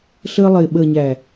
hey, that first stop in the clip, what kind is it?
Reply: implosive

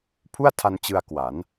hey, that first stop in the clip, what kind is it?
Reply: aspirated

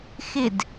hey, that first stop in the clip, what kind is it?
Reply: plain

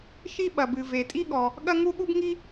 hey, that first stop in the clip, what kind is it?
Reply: implosive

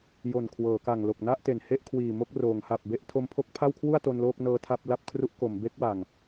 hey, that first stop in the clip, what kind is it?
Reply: aspirated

